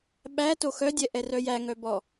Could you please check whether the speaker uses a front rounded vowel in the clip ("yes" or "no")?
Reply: yes